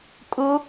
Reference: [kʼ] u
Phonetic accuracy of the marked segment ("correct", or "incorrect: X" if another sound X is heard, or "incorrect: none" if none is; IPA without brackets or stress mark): correct